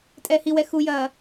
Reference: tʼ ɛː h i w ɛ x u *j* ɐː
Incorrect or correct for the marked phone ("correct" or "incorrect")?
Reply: correct